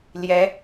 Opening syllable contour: rising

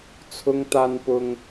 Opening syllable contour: high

